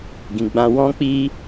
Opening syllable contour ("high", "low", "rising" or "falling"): low